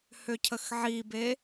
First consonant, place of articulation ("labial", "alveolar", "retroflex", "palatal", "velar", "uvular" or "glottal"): glottal